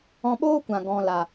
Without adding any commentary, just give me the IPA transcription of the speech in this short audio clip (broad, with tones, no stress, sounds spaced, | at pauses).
ɔ̃˧ ɓ oː˦ kʷ ã˨ ɡ ɔ̃˨ l a˨